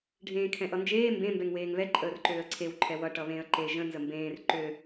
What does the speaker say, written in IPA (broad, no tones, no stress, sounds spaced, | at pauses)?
ɖʱ ẽː kʰ ɛ̃ ʔ ʌ n d͡ʒ eː m b ẽ m b ɛ ŋ w eː ŋ β ɛ ǃʼ əː r ǃ øː ə̯ ǀʰ e w ǃʰ ɛ w ʌ ʈ ʌ β ẽ ə̯ ǃ e ʒ ə̃ n z ə m b ẽː r ǃ ø